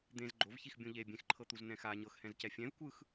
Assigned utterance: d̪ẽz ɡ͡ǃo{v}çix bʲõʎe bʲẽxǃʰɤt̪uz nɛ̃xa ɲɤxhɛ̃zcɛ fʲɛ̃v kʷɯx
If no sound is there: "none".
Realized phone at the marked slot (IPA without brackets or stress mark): v